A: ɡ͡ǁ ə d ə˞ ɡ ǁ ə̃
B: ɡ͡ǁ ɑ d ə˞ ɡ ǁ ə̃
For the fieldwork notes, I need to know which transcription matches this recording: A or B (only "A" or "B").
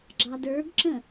B